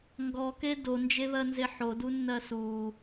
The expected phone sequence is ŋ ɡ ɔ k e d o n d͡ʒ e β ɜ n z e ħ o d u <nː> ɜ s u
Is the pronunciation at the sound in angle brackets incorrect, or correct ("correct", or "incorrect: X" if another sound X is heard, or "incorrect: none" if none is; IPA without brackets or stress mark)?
correct